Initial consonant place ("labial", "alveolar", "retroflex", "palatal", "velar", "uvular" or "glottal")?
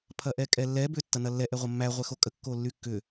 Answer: labial